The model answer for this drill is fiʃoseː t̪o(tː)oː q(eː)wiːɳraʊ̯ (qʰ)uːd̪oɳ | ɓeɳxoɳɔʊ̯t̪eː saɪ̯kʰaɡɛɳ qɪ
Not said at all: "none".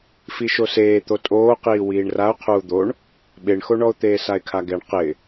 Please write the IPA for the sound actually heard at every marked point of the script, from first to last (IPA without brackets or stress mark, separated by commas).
tʼ, iː, qʰ